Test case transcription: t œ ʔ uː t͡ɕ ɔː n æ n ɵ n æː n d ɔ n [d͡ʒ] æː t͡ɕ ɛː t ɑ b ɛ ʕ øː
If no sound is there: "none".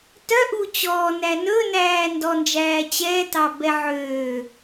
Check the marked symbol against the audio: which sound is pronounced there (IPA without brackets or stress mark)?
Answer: d͡ʒ